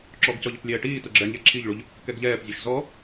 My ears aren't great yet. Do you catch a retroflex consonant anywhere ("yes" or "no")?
yes